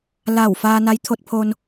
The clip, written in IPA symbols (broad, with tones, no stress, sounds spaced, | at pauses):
l a˧˩ w f aː˧ n a˧˥ j t̪ʰ o˧ t̚ pʰ o˧ n